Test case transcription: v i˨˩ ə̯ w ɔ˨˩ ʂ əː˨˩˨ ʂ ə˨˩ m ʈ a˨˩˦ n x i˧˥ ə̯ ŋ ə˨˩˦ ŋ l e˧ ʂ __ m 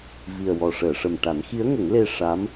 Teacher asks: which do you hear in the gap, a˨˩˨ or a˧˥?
a˧˥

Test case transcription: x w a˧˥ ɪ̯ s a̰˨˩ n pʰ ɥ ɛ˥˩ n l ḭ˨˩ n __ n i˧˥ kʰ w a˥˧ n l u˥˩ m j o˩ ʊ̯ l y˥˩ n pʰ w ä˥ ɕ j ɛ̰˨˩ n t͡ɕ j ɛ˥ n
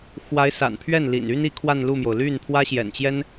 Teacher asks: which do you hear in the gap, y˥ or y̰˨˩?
y˥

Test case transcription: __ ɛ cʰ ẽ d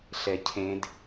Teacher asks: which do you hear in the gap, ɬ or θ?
ɬ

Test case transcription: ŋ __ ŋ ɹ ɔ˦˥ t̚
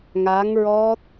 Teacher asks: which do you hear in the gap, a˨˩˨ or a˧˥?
a˧˥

